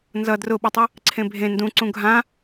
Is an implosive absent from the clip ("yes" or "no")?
no